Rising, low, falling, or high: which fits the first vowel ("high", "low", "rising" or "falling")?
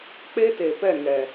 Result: high